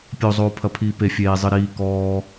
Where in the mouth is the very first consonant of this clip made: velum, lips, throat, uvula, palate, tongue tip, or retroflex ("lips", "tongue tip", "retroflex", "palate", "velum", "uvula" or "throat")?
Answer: lips